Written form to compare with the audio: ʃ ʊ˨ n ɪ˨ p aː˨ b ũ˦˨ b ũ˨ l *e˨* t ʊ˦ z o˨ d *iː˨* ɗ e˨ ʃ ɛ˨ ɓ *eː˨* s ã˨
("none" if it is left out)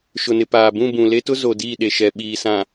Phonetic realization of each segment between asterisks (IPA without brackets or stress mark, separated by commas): e˦, iː˦˨, iː˨